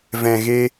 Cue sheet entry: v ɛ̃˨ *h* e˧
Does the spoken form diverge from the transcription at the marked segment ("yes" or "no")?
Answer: yes